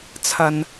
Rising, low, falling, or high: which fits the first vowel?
low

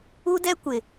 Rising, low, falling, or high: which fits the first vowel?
high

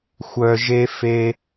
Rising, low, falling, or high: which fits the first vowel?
low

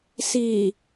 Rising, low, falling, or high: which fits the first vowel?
low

